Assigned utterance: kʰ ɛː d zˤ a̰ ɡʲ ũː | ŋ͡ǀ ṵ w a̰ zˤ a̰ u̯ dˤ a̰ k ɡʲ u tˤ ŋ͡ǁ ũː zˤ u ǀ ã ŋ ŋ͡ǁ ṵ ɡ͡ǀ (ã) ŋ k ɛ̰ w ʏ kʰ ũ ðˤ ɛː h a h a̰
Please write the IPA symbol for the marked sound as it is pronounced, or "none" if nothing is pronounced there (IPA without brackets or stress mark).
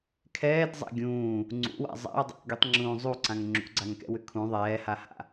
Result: a